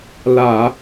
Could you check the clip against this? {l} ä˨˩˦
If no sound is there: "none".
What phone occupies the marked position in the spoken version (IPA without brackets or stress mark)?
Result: l